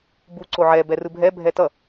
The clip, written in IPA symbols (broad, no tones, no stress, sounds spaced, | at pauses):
b u ǀ o ʕ ɛ b ɛ r ɯ bʱ ɛ bʱ ɛ t ʌ